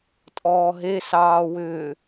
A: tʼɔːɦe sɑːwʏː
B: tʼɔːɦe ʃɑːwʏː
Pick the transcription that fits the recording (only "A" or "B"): A